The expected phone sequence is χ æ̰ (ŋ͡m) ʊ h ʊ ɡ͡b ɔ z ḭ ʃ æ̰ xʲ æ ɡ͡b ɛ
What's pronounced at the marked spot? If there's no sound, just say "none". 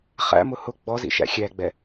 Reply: m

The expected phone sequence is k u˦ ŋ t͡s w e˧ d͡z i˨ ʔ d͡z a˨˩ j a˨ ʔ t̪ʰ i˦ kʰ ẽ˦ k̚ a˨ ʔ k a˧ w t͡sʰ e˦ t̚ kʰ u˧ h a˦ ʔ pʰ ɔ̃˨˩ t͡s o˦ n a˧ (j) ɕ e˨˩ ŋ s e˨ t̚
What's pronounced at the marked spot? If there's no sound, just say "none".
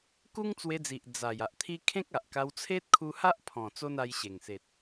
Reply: j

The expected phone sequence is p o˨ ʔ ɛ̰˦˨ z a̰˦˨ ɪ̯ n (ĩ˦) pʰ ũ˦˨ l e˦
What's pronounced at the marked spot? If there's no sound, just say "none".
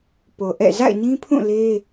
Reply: ĩ˦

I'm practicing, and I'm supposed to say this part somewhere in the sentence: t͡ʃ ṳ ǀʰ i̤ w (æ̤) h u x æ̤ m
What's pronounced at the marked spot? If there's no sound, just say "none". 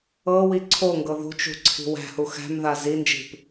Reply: æ̤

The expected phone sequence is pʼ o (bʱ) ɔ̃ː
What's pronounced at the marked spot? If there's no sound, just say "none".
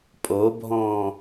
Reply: bʱ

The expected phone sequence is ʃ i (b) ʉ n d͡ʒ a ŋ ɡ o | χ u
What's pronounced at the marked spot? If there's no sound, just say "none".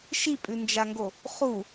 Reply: pʼ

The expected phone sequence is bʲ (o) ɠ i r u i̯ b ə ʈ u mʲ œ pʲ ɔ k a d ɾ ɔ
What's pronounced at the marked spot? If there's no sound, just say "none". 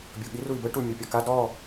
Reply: o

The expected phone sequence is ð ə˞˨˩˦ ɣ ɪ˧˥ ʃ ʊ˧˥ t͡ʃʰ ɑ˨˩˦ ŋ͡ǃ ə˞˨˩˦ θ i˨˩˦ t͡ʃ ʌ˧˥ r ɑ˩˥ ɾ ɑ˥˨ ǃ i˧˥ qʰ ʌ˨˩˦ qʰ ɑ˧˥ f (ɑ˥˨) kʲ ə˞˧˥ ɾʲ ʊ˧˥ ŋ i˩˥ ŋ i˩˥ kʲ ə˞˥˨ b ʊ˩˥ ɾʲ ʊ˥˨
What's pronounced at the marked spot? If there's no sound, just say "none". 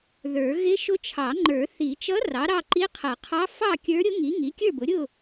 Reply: ɑ˥˨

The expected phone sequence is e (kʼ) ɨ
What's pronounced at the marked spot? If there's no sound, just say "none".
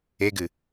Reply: ɡ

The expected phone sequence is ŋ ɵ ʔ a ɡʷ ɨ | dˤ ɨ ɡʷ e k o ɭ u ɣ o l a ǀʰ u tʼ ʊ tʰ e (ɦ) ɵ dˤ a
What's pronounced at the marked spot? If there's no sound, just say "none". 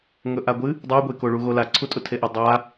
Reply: ʔ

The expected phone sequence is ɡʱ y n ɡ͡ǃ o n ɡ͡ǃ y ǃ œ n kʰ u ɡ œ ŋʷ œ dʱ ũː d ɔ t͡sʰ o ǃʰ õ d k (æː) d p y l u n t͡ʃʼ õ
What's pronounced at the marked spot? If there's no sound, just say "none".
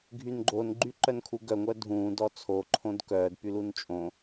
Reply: œː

